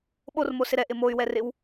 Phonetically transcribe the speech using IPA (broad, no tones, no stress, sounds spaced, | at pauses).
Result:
ɓ o r m o s ɪ ɾ ɛ ʔ ɪ m o y̯ w ɛ r ɪ w